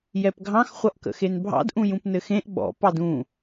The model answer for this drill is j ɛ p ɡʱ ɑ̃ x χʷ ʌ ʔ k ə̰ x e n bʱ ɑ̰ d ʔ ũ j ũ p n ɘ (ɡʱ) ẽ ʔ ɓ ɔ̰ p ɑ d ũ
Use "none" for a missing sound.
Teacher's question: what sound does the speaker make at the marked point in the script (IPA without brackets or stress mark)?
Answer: x